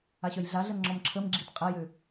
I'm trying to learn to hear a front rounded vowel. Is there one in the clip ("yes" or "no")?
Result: yes